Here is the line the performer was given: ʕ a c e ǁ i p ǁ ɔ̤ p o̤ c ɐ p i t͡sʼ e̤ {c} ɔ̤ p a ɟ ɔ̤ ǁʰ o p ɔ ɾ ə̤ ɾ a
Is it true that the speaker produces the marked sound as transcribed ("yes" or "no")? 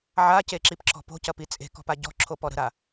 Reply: no